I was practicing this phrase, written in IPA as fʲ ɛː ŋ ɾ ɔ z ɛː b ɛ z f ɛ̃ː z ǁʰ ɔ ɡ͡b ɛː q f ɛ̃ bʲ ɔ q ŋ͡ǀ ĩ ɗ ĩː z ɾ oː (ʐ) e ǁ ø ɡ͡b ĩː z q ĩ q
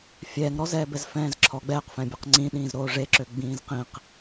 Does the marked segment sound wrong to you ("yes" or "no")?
no